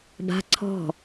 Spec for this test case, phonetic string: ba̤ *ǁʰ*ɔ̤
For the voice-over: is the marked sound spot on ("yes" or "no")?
no